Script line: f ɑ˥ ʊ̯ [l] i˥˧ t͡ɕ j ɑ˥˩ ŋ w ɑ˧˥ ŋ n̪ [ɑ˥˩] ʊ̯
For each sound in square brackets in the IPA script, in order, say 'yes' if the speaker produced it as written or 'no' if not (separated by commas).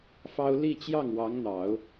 yes, no